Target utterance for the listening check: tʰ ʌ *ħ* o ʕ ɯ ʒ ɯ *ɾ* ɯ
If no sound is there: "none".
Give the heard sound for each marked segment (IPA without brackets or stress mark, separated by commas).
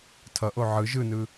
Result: ʔ, n